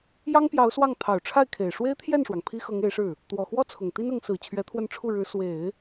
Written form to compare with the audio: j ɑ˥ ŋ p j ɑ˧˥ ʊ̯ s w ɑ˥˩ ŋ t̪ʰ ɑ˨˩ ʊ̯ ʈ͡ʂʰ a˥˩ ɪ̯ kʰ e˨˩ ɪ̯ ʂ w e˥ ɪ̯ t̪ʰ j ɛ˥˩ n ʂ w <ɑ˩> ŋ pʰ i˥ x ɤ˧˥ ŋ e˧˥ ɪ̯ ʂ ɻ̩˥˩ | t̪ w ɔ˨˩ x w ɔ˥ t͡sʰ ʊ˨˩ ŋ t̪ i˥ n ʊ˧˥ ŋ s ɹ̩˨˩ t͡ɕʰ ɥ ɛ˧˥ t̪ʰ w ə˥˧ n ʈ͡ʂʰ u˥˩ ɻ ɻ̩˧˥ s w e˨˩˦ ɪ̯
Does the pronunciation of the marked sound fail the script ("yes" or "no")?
no